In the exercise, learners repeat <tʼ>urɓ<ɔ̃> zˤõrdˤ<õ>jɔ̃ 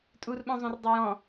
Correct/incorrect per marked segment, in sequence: correct, incorrect, incorrect

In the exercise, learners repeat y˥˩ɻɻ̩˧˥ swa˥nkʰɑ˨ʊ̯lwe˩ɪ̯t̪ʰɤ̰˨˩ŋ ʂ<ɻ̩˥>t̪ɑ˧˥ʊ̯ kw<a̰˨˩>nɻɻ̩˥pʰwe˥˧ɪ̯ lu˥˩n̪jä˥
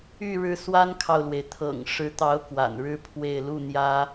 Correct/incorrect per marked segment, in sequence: incorrect, correct

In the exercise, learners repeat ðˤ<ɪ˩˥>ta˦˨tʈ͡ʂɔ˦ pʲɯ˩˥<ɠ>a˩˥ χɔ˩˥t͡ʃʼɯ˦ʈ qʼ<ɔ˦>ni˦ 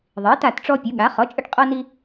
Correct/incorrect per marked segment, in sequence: incorrect, correct, correct

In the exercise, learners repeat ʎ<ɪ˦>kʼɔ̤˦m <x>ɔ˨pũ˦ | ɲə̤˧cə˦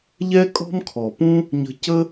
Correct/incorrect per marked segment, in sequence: incorrect, incorrect

